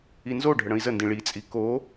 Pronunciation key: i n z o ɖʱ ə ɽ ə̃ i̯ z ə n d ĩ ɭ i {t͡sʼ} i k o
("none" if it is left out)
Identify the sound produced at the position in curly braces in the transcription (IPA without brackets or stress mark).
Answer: t͡sʼ